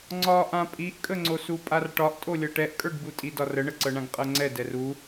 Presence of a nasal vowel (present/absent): present